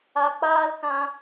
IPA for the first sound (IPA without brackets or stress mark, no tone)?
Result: a